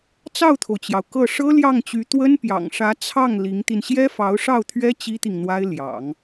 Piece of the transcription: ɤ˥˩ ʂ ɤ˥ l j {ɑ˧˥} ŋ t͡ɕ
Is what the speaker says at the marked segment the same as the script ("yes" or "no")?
no